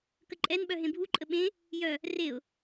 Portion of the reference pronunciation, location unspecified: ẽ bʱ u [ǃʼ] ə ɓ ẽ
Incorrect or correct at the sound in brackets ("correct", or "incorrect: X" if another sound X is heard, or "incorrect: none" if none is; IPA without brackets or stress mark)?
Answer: correct